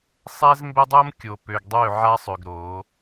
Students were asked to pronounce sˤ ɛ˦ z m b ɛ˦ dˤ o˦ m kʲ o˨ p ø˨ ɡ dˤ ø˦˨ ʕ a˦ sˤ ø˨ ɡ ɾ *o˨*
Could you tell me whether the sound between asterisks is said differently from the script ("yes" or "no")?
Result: yes